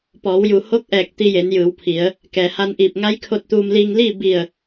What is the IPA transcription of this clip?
p ɔː˩˧ w j u˩ h o˧˥ k̚ ʔ ɛː˧˩ k̚ t̪ i˧ j e˩˧ n j ɯː˩˧ w pʰ i˩˧ ə̯ | k ɛː˩ h a˧ n ʔ iː˧˩ p̚ ŋ a˧˥ j kʰ o˧ t̚ t̪ uː˧ m l iː˧ ŋ l iː˥˨ b i˧˩ ə̯

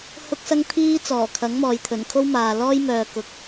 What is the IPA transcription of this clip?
h ʊ˥ k̚ s ɐ˥ ŋ t̪ʰ iː˥ t͡s ɔː˨˩ kʰ ɐ˨˥ ŋ m ɔː˨ j t̪ʰ ɵ˨˩ n kʰ o˥ w m aː˨ l ɔː˥ j m œː˧ k ʊ˧ k̚

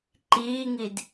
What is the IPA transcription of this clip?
ǃ iː ŋ i d

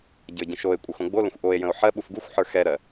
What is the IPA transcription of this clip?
ɟ ə˞ ɟ ə̃ ʃ o e̯ kʷʼ ə x õ ɡ͡b o l ə̃ xʷ ʔ o e̯ j ə̃ o̯ ħ ɜ ɓ u f ɡ u xʷ ħ ə˞ x ɛ ɾ ɜ

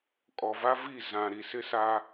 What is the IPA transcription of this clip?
kʼ ɔ˨ v a˦ v i˦˨ z ã˨ ɾ i˨ s ɪ˦ s a˦

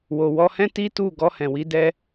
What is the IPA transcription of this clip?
w o˨ w ɔ˧ h ɛ̃˦ t i˦ t u˦˨ ɡ ɔ˧ h ɛ̃˨ w i˧ d ɛ˧

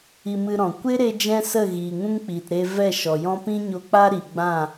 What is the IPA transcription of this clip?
i˧ m ɨ˧ ɾ ɔ̃˨ kʷ e˦ ɾ e˧ d͡ʒ ɛ̃˦ s ə˦˨ ɣ iː˨ ŋ ũ˦ ŋ k͡p iː˨ t ɾ e˧ v ɛ˦˨ ʃ ɔ˨ j ɔ̃˦ p ĩ˦ ɲ o˧ k͡p a˦ ɾ i˨ ɡ͡b ã˦˨

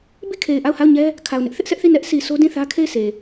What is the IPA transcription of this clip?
b i˦˨ kʰ e˨ ɪ̯ ʔ a˦˨ ʊ̯ h a˦˨ ʊ̯ ɲ ɛ˦ | kʰ a˨ ʊ̯ n ɪ˦ ʔ θ ɪ˦ ʔ s ɛ˦ ʔ θ i˦˨ n ɛ˦ ʔ s i˨ s o˦ d ĩ˦˨ θ ä˦ kʰ e˦˨ ɪ̯ sʰ e˨

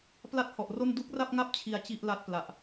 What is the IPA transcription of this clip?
p l a˥˩ t̚ h ɔ˨˩ ʔ r o˥˩ n d u˦˥ k̚ r a˥˩ p̚ ŋ a˥˩ p̚ t͡ɕʰ i˧ a̯ t͡ɕ i˥˩ ʔ l a˦˥ t̚ p l a˨˩ ʔ

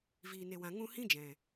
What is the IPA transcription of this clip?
v iː˨ n e˨ w ã˨ ŋ ũ˧ h ĩ˦ d͡ʒ ɛ̃˨

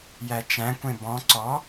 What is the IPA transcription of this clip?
j æ t͡ʃ æ̃ kʷ ẽ b ɔ̃ ǀ ɔ

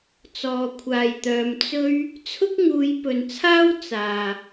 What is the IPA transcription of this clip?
t͡s ɔː˨ kʷʰ aː˨ j t̪ œː˨ m t͡s ɵ˥ ɥ | t͡sʰ ʊ˥ k̚ ŋ uː˨˧ j p ɵ˨ n t͡sʰ aː˥ w t͡s aː˨

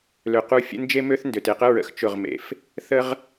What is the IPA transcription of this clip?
l ø˨ q u˦˨ fʲ ə̰˦ n d͡ʒ e˦ m ø˦ θ n d ø˨ t e˨ q ə˦ ɹ ə̰˨ x t͡ʃ ʊ˦˨ ʁ m ḛ˨ f | θ ə˦ ʁ

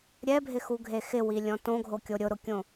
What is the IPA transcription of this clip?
ɾʲ ɛ bʱ ɪ x u ɡʱ e x ɪ w i lʲ ɔ̃ t õ ɡʱ o kʲ o ɾʲ ʊ ɾ ʊ kʲ õ

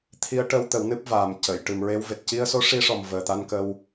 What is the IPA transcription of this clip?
t̪ʰ i˧˥ ə̯ ʈ ə˧˥ w t̪ ə˨˩˦ w n ɨ˦˥ p̚ v aː˨˩ m c ə˨˩˨ j ʈ ɨ˨˩ m ɹ e˧˥ w v e˨˩ t̚ c i˧ ə̯ s o˧˥ ʂ i˧˥ ʂ ɔ˨˩ m v əː˨˩ t̪ a˧ n k ə˧ w

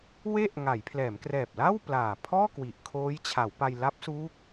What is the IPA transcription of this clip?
w e˥˩ ʔ ŋ a˩˦ j pʰ l ɛː˩˦ m k r ɛː˨˩ p̚ l a˥˩ w p l aː˨˩ pʰ ɔː˥˩ k w i˨˩ ʔ kʰ oː˦˥ j t͡ɕʰ a˩˦ w p a˧ j l a˦˥ p̚ s uː˦˥ k̚

